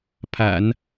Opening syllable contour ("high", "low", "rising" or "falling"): low